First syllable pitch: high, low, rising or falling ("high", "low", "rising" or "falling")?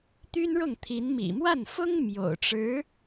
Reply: high